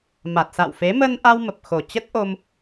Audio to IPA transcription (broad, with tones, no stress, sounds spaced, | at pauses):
m a˨˩ t̚ s a̰˧˨ w f e˨˦ m ə˧ n ʔ a˧ w m ə˨˩ p̚ x o˨˩ t͡ɕ ə˦˥ t̚ ʔ o˧ m